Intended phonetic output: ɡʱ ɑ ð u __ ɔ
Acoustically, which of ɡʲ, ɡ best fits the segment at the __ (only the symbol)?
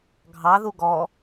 ɡ